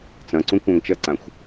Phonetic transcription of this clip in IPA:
t͡s ɐ̃ ǀ ũ kʷ ã ŋ t͡ʃ ɐ ǀ ã xʷ

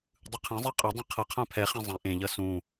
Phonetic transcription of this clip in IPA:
dˤ ɯ qʰ ẽ zˤ ɛ qʼ ʌ dˤ ẽ qʰ ʌ qʰ ã pʰ ɛ χ ɛ̃ zˤ ɛ̃ ʔ ẽ ʎ ʌ s ũ

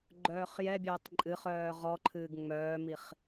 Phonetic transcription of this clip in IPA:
ɡ͡ǃ œː χ j ɛ bʲ œː tˤ ǃʼ ɨ χ œː ʁ ɔ ǃʰ ɨː ɡ ŋ͡m œː m i χ

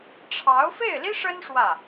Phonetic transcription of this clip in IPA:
ʈ͡ʂʰ ɑ˧˥ ʊ̯ f e˥˩ ɪ̯ l i˥ ʂ ə˥ n ʂ w ä˥˩

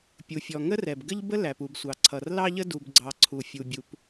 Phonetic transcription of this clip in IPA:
pʲ u˩ fʲ ɔ˩ ŋ ə˥ r ɛ˩ b ɡ ə˥ ʎ b ə˥ l æ˩ p u˩ b sʷ ɑ˩ ǀʰ ʌ˩ r l ɑ˥ ʎ ə˥ d u˩ b ɡ͡ǀ ɑ˩ ǀʰ u˩ fʲ u˩ bʲ u˩ p

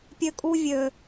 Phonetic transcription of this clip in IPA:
pʲ ø˦ kʼ u˦ vʲ ø˦

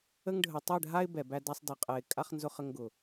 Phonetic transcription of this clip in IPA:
ə˦ ŋ ɖʱ ə˨ tˤ ɛ˦˨ ɖʱ a˦ ɪ̯ b ɛ˨ b æ˦ d a˦ sˤ d ɛ˨ qʼ ɛ˨ ɪ̯ kʼ a˦ χ n z ʊ˦ χ ə˦ ŋ ɡ ʊ˨

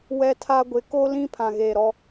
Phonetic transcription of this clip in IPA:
w ɛ˦ tʰ a˦ ɡʷ ɪ˨˦ k o˦ l ĩ˦ pʰ ã˨ ɣ eː˨ ɾ ɔ˦

